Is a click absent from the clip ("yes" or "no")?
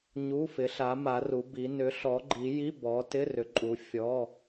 no